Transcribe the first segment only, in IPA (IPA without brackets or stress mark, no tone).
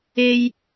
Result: e